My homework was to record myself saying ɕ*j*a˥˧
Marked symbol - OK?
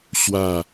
no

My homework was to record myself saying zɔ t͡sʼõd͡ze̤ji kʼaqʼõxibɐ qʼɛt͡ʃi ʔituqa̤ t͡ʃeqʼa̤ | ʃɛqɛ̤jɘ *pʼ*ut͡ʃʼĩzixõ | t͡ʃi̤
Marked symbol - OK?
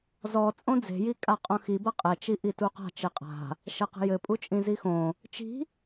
yes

